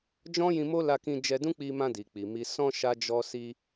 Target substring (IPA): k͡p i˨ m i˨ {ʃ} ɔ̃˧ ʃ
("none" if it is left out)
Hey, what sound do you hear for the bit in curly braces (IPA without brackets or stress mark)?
s